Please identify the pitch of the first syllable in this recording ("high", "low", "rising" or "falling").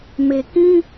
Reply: low